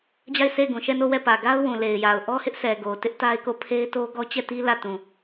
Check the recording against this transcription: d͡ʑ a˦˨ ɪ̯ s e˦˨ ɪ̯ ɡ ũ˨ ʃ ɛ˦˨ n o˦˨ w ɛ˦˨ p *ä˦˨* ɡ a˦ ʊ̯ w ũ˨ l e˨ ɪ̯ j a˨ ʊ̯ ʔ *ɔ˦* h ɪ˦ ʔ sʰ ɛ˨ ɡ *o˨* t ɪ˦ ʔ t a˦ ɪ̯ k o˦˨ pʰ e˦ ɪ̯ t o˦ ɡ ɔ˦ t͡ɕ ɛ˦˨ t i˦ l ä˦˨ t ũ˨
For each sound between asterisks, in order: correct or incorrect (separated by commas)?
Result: incorrect, correct, correct